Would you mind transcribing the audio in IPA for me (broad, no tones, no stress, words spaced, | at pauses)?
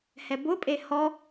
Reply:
hɛbʊpʼe hɔ